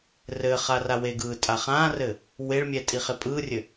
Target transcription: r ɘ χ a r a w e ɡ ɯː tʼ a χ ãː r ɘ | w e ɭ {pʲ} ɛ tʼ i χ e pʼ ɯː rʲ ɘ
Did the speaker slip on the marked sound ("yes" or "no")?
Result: yes